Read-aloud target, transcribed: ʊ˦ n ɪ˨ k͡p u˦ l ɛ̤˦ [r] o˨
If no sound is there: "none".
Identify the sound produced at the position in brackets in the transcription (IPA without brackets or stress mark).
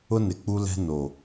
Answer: n